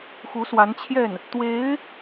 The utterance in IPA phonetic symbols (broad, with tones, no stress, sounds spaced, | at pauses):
x u˧˥ s w a˧˥ n t͡ɕʰ j ɛ˥˩ n | t̪ w e˧˥ ɪ̯